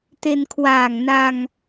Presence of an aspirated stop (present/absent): present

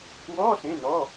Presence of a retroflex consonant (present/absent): absent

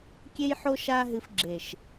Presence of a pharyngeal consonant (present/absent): present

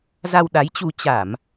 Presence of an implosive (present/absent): present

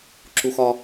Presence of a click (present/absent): present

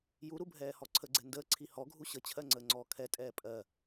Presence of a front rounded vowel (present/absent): absent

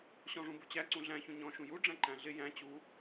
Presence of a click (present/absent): present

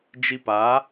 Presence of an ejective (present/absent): absent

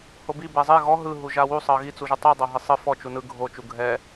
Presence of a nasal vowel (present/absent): absent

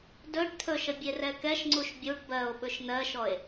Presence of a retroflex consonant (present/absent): present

